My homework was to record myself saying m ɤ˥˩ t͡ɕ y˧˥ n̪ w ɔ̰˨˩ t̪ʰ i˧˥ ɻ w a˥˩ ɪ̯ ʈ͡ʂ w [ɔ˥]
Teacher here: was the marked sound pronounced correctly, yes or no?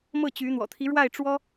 yes